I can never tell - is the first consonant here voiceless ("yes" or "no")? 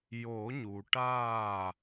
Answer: no